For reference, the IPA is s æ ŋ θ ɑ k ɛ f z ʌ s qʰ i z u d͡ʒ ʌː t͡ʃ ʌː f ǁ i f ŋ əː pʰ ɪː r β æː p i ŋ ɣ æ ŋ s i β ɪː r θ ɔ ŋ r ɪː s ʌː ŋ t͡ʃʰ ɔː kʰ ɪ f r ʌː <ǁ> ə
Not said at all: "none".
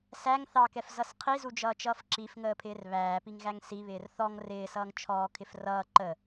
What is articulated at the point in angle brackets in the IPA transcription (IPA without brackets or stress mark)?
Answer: ǃ